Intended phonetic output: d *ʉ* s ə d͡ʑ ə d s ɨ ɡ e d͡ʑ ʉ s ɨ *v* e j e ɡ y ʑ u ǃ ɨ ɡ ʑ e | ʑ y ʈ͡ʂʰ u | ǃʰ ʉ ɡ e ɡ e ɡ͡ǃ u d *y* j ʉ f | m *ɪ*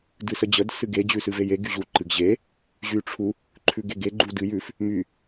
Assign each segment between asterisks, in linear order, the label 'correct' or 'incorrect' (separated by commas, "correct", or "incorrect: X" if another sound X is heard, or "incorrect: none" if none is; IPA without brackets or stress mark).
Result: incorrect: ɨ, correct, incorrect: ɨ, incorrect: y